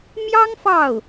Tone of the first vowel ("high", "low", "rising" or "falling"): high